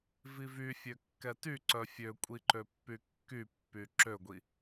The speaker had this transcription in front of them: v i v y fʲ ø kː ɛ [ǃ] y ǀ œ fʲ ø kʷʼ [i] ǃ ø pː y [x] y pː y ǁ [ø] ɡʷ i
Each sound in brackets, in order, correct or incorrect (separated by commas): incorrect, correct, incorrect, correct